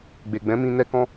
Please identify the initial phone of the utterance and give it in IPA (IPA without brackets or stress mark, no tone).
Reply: ɡ͡b